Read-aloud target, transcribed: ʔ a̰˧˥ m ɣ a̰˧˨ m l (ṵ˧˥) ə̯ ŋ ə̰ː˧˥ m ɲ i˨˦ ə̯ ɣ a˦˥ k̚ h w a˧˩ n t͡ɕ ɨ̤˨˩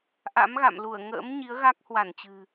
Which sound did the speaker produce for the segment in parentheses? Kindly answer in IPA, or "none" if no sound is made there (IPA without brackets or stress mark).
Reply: u˧˩